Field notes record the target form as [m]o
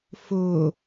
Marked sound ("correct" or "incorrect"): incorrect